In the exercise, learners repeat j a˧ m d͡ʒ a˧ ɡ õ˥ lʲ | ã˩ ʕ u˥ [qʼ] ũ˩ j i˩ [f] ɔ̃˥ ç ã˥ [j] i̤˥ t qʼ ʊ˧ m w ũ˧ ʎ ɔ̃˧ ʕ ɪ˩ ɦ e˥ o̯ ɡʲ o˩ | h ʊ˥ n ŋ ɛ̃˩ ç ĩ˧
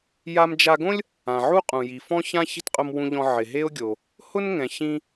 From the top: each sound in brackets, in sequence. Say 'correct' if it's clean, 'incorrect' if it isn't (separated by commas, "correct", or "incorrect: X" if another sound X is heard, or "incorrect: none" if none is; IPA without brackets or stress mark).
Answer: correct, correct, incorrect: ç